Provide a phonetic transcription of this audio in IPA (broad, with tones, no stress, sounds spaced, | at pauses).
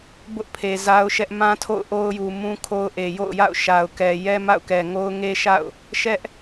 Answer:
b ʊ˦ ʔ pʰ e˨ z a˦ ʊ̯ ʃ ɛ˦ ʔ m ã˦ tʰ o̰˦˨ ʊ̯ ʔ o˦ ʊ̯ j u˨ m ũ˦ kʰ o˦ ʊ̯ ʔ e˨ j o̰˦˨ ʊ̯ j a̰˦˨ ʊ̯ ʃ a˨ ʊ̯ k ɛ˨ j ɛ˦ m a̰˦˨ ʊ̯ k ɛ˨ ŋ o˦ ʊ̯ ŋ e˦ ʃ a̰˦˨ ʊ̯ | ʃ ɛ˦ ʔ